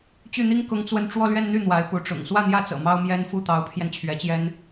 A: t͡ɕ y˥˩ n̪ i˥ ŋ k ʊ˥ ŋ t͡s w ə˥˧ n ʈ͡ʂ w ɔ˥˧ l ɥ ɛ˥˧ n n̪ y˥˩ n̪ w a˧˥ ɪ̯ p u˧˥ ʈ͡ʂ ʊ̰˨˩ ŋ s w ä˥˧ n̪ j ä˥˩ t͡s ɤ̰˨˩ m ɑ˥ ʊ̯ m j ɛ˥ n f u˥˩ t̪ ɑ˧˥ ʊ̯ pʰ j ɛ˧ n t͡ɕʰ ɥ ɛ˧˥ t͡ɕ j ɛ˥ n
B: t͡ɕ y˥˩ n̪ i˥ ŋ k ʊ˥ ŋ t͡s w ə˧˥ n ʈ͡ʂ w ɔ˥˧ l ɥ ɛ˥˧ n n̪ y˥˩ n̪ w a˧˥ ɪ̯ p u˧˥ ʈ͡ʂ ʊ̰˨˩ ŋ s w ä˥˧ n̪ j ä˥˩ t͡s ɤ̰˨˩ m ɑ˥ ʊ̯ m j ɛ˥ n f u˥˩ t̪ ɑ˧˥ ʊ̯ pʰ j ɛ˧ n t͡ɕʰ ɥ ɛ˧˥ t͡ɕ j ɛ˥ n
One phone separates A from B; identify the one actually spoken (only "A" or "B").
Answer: A